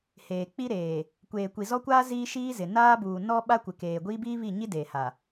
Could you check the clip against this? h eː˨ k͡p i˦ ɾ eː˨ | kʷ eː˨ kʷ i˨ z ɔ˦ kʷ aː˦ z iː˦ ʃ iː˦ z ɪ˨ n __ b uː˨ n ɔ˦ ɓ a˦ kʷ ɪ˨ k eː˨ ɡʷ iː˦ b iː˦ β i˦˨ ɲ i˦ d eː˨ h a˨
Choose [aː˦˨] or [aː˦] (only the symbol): aː˦